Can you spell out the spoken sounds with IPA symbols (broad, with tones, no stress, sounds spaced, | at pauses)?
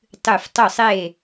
tˤ ɨ˧˩ f tˤ ɵ˥˨ sˤ e˥˨